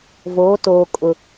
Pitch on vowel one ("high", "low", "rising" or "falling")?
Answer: rising